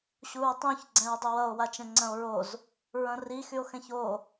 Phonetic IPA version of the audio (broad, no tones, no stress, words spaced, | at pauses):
ɕuɹtˤũç ɡ͡ǀɛ̃ɹdˤuwʌo̯ wat͡ʃɛ̃ŋ͡ǀɐ̃o̯ɹoz | ɹɐ̃ri xyo̯xɛ̃ço